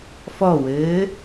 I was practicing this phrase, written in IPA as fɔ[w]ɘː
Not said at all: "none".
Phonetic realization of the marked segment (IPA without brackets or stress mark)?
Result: w